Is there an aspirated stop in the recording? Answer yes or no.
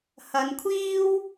yes